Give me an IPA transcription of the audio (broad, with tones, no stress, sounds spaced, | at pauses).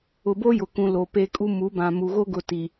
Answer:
ʊ˨ b o˦ j ʊ˨ k ũ˨ l o˨ p e˦ kʼ u˦ m u˨˦ b ã˨ m u˨ ɣ o˦ ɡ ʊ˨ t i˨